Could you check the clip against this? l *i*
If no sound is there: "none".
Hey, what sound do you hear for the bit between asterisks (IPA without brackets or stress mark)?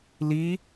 i